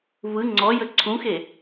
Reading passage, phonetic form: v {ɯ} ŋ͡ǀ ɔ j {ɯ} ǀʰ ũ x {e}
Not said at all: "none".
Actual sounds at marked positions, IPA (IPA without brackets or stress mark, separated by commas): ɯ, ə, e